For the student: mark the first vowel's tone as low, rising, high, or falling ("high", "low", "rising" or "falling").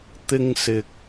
high